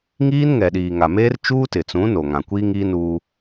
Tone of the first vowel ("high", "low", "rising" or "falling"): high